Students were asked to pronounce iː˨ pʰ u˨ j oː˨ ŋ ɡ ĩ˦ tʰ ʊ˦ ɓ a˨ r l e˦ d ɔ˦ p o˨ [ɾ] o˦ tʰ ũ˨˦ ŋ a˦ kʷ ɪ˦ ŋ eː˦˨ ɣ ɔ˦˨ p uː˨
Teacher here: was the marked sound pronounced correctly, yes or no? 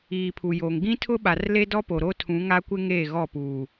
yes